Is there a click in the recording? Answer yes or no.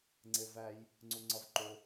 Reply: yes